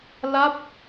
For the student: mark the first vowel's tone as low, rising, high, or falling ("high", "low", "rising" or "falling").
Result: falling